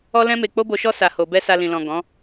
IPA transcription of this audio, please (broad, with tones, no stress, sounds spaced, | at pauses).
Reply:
ɔ˦ l ɛ̃˦ m e˧ k͡p o˦ b o˧ ʃ ɔ˦ s a˧ h o˧ b ɛ˦ s a˧ l ĩ˨ l ɔ̃˨ ɡ ɔ̃˨˦